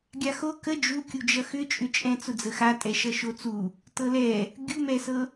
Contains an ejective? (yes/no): yes